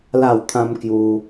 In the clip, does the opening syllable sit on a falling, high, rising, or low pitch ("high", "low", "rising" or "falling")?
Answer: falling